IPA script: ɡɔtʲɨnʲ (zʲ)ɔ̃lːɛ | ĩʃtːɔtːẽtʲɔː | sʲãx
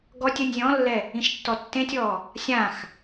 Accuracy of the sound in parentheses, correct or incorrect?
correct